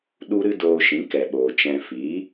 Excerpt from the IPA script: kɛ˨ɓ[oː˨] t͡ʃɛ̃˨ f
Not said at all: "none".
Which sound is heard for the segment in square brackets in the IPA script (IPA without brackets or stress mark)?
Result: oː˨